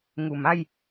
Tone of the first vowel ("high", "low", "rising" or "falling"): low